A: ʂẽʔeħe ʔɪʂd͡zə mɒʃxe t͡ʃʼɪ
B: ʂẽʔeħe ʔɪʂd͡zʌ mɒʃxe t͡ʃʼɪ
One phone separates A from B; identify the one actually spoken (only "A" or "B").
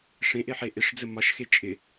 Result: A